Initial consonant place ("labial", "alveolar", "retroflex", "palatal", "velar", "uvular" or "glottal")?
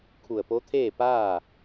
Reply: velar